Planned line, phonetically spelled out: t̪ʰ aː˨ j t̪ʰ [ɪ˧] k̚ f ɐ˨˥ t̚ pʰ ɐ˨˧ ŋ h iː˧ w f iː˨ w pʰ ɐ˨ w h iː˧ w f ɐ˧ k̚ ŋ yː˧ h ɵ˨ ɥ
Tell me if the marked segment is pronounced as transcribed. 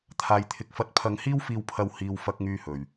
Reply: no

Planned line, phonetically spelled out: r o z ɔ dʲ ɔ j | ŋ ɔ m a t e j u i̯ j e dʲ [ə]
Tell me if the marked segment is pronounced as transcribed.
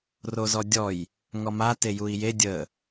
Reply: yes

